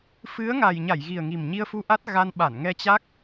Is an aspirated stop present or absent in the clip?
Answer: absent